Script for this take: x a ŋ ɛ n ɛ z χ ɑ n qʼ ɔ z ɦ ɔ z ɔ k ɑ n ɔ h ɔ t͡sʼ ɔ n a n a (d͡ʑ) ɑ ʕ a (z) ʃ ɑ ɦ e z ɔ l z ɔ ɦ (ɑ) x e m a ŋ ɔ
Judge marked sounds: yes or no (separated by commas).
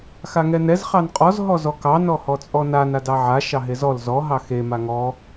no, no, yes